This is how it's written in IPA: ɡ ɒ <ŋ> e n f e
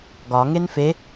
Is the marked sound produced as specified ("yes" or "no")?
yes